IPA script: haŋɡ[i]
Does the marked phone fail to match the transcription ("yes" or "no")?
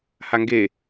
yes